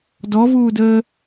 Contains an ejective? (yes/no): no